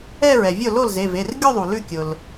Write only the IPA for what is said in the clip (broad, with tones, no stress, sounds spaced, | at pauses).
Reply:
ɛ˥˧ ɹ ɛ˩ vʲ ʊ˥˩ l o˥˩ l z e˩˧˩ v e˩˧˩ r ɡʲ o˥˧ ðˤ u˩ l ʉ˥˩ kʲ ʊ˩ l